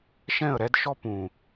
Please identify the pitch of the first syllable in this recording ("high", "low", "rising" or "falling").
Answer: falling